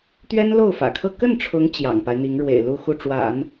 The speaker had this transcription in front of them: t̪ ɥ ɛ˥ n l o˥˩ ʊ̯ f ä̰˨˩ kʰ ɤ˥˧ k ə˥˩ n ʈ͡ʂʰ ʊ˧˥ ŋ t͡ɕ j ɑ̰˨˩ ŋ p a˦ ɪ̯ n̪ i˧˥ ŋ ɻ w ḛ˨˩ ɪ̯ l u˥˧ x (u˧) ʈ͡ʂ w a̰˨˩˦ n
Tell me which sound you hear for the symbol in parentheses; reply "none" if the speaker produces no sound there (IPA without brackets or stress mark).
u˥˩